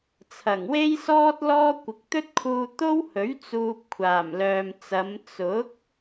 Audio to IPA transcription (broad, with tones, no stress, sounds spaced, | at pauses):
t͡sʰ ɐ˨˩ ŋ w e˥ j s ɔː˥ t̚ l ɔː˥ kʷ ɪ˨ k̚ t̪ ɵ˥ t̚ kʰ uː˧ t̪ o˥ w h ɵ˨˥ ɥ t͡s uː˧ p̚ kʷʰ aː˨˩ m l œː˨ m t͡s ɐ˨˧ m t͡s ʊ˨˥ k̚